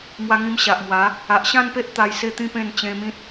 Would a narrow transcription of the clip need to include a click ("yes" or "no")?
no